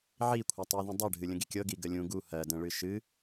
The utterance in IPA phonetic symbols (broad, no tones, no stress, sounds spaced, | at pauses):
ʕ i kʷʰ ɜ tˤ ɨ ð ũ dˤ ɜ ɖʱ ɨ lʲ ə̃ ɡ i kʲ ɤ ɡ i ɡ ə lʲ ũ ɡ u h ɜ d ə̃ ɭ ɨ ʃ ɨ